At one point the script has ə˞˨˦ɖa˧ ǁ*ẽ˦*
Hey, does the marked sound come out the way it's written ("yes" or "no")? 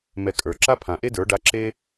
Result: no